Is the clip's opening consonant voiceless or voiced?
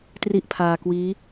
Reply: voiceless